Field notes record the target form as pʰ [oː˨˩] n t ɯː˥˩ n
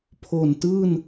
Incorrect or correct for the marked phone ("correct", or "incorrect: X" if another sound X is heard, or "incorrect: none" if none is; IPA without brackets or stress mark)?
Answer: incorrect: o˨˩